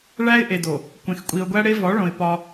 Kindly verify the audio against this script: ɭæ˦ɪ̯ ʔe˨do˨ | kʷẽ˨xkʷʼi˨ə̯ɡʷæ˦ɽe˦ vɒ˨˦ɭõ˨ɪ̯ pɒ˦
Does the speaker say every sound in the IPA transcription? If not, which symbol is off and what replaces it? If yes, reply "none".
none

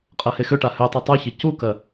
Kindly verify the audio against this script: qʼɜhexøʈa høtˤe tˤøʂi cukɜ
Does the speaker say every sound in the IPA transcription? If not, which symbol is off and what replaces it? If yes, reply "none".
ʂ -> ç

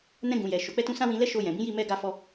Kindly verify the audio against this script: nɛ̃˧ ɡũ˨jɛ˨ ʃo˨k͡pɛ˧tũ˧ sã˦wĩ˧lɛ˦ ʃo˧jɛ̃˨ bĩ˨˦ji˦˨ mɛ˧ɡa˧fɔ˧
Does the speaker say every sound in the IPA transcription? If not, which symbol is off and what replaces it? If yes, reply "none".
none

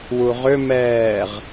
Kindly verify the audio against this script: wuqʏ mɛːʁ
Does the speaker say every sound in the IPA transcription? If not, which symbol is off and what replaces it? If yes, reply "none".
q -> ʁ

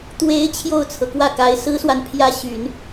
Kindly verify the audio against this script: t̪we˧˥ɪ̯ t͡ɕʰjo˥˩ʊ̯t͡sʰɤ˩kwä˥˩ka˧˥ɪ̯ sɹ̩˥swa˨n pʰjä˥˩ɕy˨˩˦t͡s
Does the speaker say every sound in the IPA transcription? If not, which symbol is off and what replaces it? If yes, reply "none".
t͡s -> n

